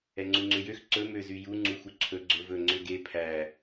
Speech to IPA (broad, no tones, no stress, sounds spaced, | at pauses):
ɛ ŋ͡ǀ u ŋ͡ǀ ø j ø x ǀ ɵ m ø z y j u ŋ͡ǀ u x u ǀʰ ɵ ɡ͡ǀ ɵ v ɵ ŋ͡ǀ ø ɡ e pʰ æ